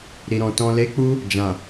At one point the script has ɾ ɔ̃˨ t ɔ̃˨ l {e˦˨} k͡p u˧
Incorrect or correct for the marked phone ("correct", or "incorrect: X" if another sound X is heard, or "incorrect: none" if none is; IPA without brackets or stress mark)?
incorrect: e˨˦